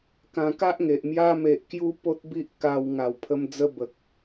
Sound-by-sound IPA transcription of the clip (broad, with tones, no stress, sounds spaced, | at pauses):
k ã˧ k a˦ ʔ ŋ e˨ ʔ m j a˧ m e˨ ʔ k j u˧ p o˦ t̚ b i˦ ʔ k a˧ w ŋ a˨˩ w pʰ ə˧ m d͡z ə˦ b ə˨ k̚